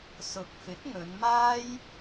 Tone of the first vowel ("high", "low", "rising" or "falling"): rising